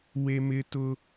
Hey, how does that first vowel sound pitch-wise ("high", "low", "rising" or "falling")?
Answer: high